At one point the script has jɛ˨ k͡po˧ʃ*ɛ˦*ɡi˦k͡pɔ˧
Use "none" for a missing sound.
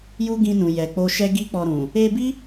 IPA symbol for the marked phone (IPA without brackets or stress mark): ɛ˦